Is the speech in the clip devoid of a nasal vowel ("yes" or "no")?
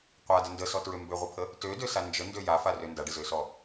yes